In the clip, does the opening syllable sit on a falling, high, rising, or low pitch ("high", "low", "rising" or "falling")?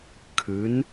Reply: rising